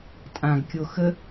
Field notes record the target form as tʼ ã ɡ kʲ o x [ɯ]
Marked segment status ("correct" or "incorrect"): incorrect